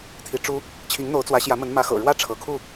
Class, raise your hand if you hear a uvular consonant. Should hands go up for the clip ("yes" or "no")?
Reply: no